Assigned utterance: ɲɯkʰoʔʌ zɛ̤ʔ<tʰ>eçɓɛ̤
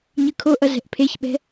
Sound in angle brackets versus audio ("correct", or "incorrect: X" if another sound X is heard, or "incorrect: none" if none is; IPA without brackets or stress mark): incorrect: pʰ